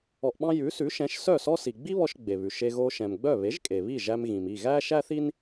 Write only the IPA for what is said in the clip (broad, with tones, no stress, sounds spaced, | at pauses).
ɔ˧ ʔ ɓ ɑ̃˥ j ʉ˩˥ s ʉ˩˥ ʃ ɛ̃˩˥ ʃ s œ˥˩ s ɔ˥ s i˩ ɡ͡b i˥ β ɔ˧ ʃ ɡ͡b e˩ β ʉ˩ ʃ e˧ ɣ oː˧ ʃ ɛ̃˩ m ɡ͡b œ˥˩ β e˩˥ ʒ kʼ e˩ β i˥˩ ʒ æ˧ m ɣ ĩ˩ m i˥˩ ɣ æː˥ ʃ æ˥ θ i˥ n